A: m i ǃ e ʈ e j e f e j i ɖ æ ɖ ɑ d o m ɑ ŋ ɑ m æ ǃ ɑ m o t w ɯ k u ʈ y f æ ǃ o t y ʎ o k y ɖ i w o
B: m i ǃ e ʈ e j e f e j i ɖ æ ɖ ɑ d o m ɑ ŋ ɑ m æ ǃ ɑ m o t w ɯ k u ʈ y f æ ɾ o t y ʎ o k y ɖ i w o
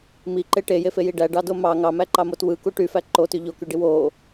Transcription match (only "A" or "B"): A